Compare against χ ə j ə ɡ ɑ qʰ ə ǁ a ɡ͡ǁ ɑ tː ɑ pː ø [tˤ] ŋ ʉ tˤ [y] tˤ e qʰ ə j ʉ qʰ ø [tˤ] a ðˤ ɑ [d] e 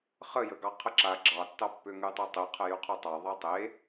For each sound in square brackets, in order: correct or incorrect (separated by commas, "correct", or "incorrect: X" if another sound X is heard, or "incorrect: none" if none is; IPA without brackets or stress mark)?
incorrect: none, incorrect: e, correct, incorrect: tˤ